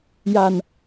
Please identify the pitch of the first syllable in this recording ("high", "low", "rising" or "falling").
low